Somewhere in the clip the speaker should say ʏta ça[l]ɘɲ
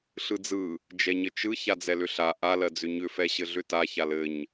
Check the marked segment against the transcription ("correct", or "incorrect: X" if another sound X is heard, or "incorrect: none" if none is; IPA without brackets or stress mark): correct